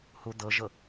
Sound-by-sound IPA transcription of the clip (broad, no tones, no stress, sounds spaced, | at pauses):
h u d̪ ɤ ʒ ɤ